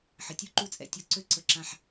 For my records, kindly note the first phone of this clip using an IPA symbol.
ħ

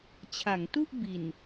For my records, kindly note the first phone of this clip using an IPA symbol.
t͡ɕʰ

